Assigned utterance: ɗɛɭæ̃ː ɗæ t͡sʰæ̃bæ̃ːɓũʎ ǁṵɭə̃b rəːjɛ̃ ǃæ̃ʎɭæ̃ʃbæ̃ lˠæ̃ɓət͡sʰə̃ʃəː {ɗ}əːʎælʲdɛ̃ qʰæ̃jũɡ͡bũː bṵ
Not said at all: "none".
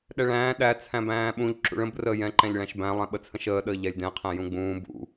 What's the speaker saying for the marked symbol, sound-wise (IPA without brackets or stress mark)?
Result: ɗ